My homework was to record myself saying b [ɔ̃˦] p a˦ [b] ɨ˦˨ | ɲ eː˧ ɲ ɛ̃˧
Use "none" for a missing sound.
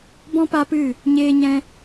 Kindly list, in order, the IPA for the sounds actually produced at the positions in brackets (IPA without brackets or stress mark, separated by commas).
ɔ̃˦, p